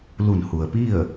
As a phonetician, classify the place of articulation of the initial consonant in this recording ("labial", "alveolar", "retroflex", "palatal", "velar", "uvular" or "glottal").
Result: alveolar